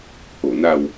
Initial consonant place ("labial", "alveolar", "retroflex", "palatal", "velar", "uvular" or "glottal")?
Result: glottal